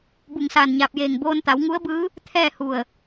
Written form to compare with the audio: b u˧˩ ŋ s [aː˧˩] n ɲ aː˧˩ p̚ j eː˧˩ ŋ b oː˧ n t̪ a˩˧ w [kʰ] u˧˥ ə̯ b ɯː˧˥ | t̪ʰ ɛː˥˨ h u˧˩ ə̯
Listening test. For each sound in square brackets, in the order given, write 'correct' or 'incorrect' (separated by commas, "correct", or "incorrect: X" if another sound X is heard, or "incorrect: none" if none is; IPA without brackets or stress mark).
correct, incorrect: ŋ